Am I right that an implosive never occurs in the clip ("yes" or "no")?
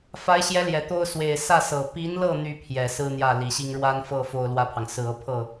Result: yes